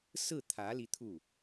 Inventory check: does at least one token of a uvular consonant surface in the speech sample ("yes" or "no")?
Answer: no